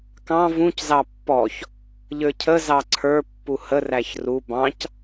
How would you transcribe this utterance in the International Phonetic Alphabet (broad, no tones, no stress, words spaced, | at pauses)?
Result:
kɑ̃ vũczɑ pːɔç | ʎə˞cʰəzɑ ǀʰə˞ pːuhəræç ru bɑ̃c